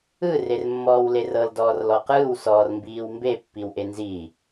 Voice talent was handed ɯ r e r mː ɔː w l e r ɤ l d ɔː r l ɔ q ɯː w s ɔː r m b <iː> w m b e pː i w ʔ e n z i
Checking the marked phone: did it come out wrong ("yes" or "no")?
no